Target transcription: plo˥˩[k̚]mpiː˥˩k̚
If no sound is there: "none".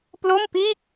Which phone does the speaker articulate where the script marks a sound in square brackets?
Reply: none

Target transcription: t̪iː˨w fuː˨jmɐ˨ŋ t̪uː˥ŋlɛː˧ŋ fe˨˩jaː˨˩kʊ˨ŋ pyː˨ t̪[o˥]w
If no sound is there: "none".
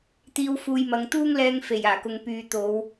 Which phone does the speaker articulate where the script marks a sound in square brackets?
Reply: o˨˧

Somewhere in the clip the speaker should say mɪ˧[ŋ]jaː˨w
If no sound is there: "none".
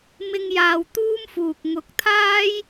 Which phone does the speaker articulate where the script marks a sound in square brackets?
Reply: ŋ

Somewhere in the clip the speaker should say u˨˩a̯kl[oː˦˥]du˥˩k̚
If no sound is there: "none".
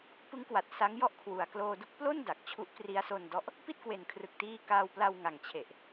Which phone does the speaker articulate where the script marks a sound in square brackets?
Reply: oː˧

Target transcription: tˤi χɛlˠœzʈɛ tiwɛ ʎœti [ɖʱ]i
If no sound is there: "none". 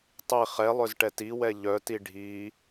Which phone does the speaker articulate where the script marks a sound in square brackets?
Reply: ɖʱ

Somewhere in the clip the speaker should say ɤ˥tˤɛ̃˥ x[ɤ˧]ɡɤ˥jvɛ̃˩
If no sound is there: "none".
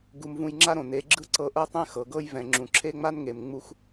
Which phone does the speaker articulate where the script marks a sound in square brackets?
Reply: ɤ˩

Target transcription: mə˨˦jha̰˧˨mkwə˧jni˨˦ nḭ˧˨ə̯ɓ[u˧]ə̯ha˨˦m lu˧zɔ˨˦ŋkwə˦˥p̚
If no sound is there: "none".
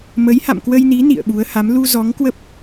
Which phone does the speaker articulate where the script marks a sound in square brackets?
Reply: u˨˦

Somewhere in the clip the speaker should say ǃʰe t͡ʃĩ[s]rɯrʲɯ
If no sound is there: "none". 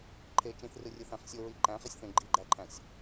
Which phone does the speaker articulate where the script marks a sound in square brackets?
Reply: θ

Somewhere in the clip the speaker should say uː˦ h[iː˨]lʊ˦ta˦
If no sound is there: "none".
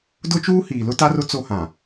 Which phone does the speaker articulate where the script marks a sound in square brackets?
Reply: iː˨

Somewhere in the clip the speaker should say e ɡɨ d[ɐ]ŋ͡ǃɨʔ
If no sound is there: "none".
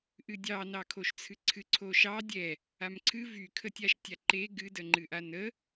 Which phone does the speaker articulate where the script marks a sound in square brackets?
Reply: ə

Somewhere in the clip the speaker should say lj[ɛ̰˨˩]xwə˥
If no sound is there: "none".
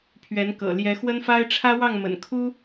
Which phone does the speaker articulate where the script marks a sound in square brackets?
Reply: ɛ˧˥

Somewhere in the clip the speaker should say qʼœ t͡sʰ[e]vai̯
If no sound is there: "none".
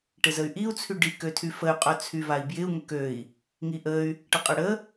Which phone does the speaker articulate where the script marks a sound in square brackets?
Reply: y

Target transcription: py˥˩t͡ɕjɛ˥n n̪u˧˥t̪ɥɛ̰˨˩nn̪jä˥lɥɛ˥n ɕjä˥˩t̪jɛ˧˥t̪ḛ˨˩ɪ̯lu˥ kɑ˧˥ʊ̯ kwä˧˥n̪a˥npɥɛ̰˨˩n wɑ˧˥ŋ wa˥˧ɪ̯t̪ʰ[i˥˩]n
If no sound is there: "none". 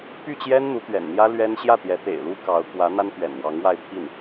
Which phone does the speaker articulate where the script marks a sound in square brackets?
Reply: i˥˩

